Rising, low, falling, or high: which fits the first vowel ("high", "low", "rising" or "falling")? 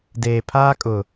low